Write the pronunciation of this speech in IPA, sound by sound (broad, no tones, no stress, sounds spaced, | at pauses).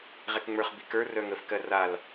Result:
ʁ ɛ k ŋ͡m ə˞ χ b i k ə˞ r œ ŋ ə f k ɜ r a l